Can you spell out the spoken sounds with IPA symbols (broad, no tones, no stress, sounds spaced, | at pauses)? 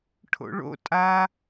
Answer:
ʈʰ o̰ ɭ o̰ tʼ a